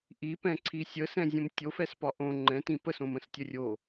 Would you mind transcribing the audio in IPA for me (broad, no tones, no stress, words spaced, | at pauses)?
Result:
ʔipɛ̃ǀʰi sʲəsɛ̃zʲə̃m tʲofɛspɒ ʔõ ŋ͡ǃɛ̃tĩ pəsõmə̃stʲə rʲo